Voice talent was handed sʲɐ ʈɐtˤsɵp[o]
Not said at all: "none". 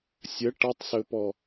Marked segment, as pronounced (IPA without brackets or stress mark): ɔ